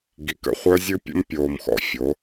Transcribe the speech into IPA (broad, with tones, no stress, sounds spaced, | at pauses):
ɡ i˨ k ə̰˦ χʷ œ˦ zʲ ɨ˦ pʲ ə̰˦ m pʲ oː˨ m x ɔ̰˨ fʲ o˨˦